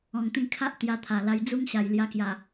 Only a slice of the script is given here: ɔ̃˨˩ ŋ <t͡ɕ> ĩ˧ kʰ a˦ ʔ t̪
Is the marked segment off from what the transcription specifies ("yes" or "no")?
yes